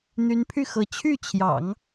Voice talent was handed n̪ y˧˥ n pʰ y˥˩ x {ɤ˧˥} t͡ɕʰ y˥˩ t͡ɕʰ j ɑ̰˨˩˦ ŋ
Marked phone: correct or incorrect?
correct